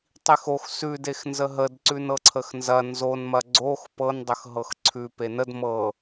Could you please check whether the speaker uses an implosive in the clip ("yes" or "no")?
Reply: no